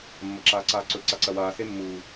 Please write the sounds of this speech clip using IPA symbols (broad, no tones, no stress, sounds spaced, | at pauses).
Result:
mː ɐ ǁ aː ǀ aː ǀ ɵ ǀ a ǀ ɐ w aː s e mː uː